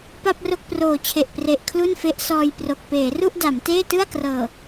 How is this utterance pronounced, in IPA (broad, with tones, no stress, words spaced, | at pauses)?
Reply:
pa˥˩p̚ro˥˩k̚proː˨˩t͡ɕʰe˨˩ʔ pre˨˩ʔkʰlu˥˩nfe˦˥ʔ sɔː˧jpro˨˩k̚ peː˩˦ru˥˩ʔda˩˦mteː˥˩ tɯ˥˩a̯krɤː˨˩